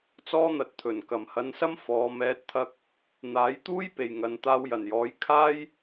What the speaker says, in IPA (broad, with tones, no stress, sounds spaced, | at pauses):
t͡s ɔː˥ n̪ ɐ˨ t̚ t̪ʰ ɵ˨˩ n k ɐ˨˩ m h ɐ˨˧ n s ɐ˥ m f ɔː˨˧ m ɛː˨˥ t̚ t̪ʰ ɐ˧ k̚ | n̪ aː˨˥ j t̪ uː˥ j p e˨ j ŋ ɐ˨˧ n t̪ aː˧ w j ɐ˨˩ n j ɔː˨˥ j kʰ aː˥ j